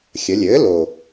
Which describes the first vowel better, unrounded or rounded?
unrounded